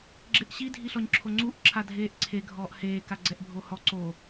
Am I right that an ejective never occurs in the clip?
yes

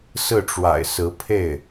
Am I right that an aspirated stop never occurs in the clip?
no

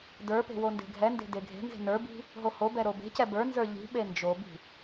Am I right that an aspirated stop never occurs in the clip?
yes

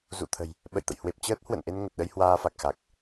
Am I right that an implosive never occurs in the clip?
no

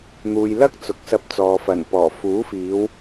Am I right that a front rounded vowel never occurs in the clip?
yes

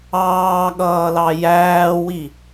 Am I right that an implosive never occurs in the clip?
no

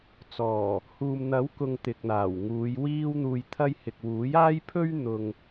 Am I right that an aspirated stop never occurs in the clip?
no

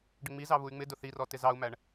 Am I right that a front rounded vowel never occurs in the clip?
no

